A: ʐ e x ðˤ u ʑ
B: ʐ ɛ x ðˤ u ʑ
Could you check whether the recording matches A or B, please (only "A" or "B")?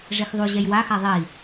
A